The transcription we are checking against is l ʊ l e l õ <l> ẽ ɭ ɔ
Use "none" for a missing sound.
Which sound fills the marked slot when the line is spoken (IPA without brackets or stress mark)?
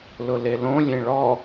lʲ